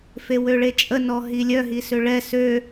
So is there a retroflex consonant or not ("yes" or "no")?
yes